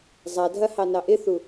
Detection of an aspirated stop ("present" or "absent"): absent